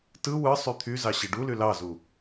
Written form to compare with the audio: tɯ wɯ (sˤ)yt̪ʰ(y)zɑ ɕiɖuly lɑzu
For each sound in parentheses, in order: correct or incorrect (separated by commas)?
correct, correct